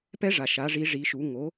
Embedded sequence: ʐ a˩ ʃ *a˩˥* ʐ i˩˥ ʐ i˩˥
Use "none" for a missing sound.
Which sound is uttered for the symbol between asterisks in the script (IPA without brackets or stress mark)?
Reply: a˩˥